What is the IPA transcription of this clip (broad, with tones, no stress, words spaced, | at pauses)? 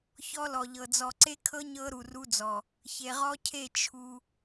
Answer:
çɔ˦lɔ˨ʎɤ˨ d͡zɔ˨ǀe˦kʰɤ˦ ɲɤ˦ ɾu˨ru˦d͡zɔ˨ | çe˨ʁɔ˦cʰe˦˨ t͡ʃʰu˦